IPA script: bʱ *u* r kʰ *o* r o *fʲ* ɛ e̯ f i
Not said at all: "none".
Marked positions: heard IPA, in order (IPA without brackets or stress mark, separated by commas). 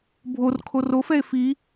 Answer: o, o, f